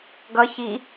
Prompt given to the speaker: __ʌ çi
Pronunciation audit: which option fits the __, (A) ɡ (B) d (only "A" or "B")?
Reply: A